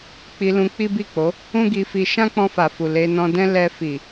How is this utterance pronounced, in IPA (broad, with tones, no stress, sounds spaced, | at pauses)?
k͡p i˧ l ũ˧ k͡p i˦ b i˦˨ k͡p o˨˦ | ũ˦ ɡ i˧ f i˧ ʃ ã˦ k͡p ɔ̃˧ f a˨ f u˨ l e˧ n ɔ̃˧ d ɛ̃˦ l ɛ˧ f i˨